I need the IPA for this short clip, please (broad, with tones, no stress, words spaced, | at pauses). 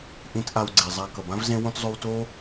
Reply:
ʔĩ˧t ʔa˧wɡ͡ǀi˨zˤa˧ kʌ˨bã˦v zẽ˦wõ˦tzˤo˦w to˦